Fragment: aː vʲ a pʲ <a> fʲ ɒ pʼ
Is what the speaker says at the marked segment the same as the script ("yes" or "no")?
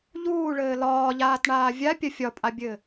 no